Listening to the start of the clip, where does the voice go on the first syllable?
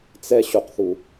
high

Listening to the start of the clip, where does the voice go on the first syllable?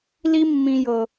high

